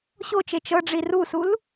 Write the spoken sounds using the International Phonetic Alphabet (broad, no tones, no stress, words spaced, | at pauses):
ɕot͡ʃe t͡ʃɤɖ͡ʐi rusul